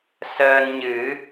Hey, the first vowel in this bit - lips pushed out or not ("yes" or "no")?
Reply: no